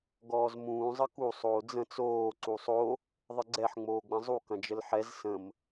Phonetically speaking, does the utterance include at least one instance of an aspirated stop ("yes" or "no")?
no